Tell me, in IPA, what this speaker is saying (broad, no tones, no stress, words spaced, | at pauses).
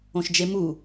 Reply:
õʃd͡ʒemu